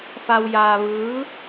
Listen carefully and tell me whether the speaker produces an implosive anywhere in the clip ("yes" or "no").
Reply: no